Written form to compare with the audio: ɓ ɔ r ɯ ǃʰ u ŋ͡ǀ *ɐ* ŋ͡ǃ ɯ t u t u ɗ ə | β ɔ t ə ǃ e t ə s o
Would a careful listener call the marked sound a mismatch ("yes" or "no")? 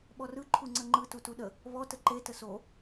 yes